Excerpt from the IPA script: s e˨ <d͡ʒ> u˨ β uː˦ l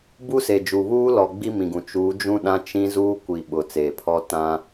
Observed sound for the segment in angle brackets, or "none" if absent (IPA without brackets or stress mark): d͡ʒ